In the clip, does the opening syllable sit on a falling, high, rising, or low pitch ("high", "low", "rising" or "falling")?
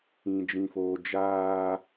low